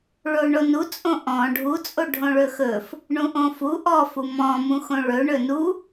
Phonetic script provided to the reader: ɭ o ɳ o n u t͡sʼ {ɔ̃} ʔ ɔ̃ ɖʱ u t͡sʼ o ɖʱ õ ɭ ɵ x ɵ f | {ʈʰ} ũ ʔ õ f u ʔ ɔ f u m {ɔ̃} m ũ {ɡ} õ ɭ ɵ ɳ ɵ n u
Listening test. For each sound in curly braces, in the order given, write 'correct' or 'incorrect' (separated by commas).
incorrect, incorrect, correct, incorrect